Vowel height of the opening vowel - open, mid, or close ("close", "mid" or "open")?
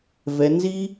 mid